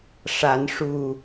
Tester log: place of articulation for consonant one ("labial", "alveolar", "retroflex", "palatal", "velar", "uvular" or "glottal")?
retroflex